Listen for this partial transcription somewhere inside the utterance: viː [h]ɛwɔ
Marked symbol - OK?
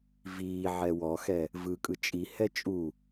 no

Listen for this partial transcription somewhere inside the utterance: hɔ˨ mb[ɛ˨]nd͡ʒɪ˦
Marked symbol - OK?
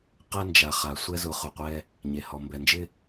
yes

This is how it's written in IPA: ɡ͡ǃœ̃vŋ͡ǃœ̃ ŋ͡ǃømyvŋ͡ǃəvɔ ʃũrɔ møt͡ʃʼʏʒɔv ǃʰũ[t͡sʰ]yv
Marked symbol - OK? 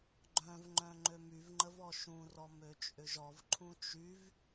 no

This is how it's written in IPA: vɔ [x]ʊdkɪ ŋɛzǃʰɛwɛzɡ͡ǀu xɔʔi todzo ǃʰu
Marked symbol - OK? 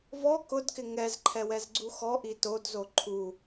no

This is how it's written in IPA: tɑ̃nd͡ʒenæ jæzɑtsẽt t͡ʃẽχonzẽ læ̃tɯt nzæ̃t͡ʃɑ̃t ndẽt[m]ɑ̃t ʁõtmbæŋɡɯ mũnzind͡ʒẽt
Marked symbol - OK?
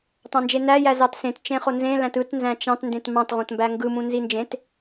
yes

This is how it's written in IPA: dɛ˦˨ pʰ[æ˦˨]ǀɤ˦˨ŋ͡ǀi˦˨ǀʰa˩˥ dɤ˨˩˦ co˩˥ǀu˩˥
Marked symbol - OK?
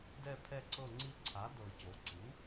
no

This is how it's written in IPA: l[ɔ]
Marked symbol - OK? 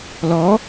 yes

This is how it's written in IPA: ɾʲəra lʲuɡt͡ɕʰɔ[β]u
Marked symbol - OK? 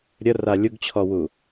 no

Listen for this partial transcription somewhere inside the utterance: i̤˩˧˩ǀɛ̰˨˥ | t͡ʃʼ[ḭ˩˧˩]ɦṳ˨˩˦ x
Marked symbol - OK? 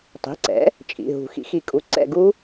yes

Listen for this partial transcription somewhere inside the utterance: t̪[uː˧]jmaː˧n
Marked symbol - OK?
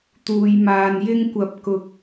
yes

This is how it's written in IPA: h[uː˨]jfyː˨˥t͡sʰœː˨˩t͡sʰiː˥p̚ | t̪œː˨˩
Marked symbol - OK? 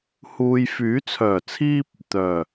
yes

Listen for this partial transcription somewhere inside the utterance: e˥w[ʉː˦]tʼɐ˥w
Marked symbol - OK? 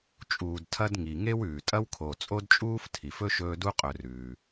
no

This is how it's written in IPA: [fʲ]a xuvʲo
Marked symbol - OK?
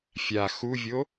yes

